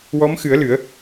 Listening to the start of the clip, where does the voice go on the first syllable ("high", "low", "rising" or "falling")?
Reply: rising